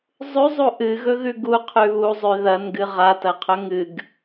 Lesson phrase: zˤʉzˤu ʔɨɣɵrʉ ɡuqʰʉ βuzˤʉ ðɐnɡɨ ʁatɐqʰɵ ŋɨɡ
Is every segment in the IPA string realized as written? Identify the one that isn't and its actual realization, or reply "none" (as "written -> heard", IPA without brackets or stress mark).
r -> ɣ